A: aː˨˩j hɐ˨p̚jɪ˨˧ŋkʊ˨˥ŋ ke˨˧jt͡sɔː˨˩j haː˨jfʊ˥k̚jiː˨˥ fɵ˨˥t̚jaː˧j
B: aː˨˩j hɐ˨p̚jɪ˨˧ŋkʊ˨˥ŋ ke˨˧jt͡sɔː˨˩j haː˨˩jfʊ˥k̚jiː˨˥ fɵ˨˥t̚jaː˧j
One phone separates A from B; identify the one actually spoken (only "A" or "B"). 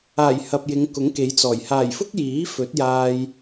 B